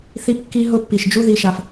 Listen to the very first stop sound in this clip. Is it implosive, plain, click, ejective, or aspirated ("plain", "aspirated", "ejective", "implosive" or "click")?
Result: plain